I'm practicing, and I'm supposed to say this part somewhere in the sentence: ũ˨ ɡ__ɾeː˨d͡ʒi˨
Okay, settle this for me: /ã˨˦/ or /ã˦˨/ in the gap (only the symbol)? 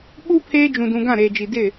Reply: ã˦˨